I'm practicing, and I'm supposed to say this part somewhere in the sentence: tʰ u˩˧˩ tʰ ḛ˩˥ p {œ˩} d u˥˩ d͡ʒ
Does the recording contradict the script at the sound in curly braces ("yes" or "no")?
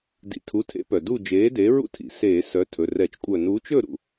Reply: no